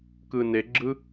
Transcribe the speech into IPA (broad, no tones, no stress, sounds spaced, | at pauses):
k ɯ n e ɡ͡ǁ ɯ